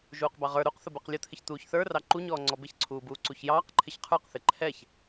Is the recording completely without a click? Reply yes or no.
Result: no